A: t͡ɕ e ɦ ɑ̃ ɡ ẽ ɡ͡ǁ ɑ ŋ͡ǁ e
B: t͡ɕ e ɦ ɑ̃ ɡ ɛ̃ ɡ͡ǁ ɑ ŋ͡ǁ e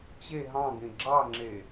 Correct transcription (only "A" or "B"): A